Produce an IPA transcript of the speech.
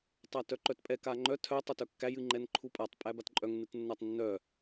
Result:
tˤ a t œ ǃ œ t pʼ ɛ k a ŋ͡ǃ œ tʰ œ tˤ œ t œ kː æ j ɨ ŋ͡ǃ ɛ n ǃʰ u pʼ a tˤ pʼ æ b a t ǃʼ œ ŋ n ɨ t nː a tˤ nː œ

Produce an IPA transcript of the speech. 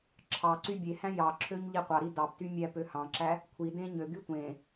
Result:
ǁʰ ɑ ǀ y bʲ e h æ̃ j ɑ ǁʰ ø ɲ ʎ i qʷ ɑ ɾ i d ɑ p t y mʲ æ p ø h ɑ̃ ǁ æ | kʷʰ i d ẽ ɲ ø ɡ y tʷ ẽ

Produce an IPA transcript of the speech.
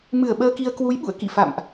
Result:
m ɨ˧˩ ə̯ ɓ əː˧ k i˧ ə̯ k w u˨˦ j ɓ ṵ˧˨ ə̯ k ḭ˧˨ f a̰˧˨ m ʔ

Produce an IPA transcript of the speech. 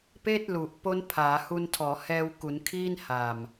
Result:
p eː˥˩ t̚ l u˨˩ ʔ p o˦˥ n pʰ aː˩˦ h u˧ n tʰ ɔː˩˦ h ɛː˧ w k u˩˦ n kʰ iː˥˩ n h a˨˩ m

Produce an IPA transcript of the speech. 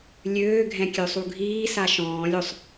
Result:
lʲ øː ɡʱ ɛ̃ kʲ ø sˤ u ɡʱ iː s a ʃ ɔ̃ː lʲ o sˤ

